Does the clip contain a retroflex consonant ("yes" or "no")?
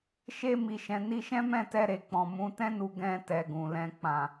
no